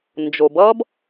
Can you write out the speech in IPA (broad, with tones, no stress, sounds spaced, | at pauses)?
n d͡ʒ o˩ b ʌ˥ b